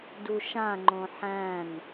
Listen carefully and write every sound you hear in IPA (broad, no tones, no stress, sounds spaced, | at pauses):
d u ʃ ã ŋ͡ǃ õ ħ æ̃ n